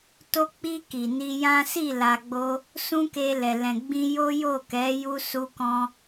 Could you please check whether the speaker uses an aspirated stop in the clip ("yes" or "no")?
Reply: no